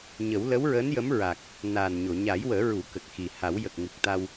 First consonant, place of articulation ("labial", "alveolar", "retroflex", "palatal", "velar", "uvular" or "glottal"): palatal